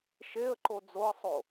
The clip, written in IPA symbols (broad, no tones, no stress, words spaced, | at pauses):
ʃeə̯ǃo d͡zoə̯sˤo